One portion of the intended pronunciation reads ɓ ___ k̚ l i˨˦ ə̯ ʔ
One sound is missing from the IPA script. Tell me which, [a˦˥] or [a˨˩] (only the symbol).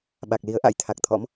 a˨˩